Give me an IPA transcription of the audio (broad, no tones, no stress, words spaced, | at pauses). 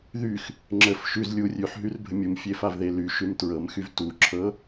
ðyx | ŋ͡ǁəf ʃʉz lʲu rʲʉħɦyrbʱə mʲumfʲefavðe lyʃʉm tɹɤmxyv tuǁʰɤ